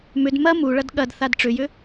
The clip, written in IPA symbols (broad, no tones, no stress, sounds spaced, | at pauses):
m ʏ d m ɐ m u ɭ ɐ d ɠ ɐ d θ a d ʈ͡ʂ ʏ j ʏ